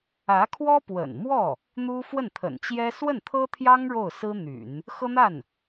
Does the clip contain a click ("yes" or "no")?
no